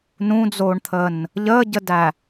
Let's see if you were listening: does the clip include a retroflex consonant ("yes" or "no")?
yes